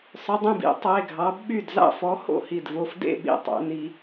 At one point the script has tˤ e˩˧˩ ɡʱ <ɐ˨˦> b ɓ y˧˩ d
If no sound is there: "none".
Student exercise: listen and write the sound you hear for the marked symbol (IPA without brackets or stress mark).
ɑ˨˦